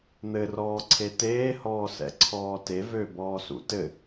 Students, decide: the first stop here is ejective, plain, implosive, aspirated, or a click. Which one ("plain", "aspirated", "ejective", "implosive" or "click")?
click